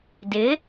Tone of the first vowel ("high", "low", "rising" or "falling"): rising